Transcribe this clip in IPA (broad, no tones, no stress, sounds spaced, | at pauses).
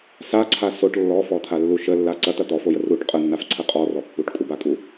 s a ǀʰ a s o ʈ lː ɔ f ɔ t̪ʰ a lː u ʃ ə lː a ǀ ɐ t̪ ɐ t̪ ɔ f o j ə r u ʈ qʼ ə nː a f ǀʰ ə qʼ ɔ r ɔ pː u ʈ kʼ u b a kʼ u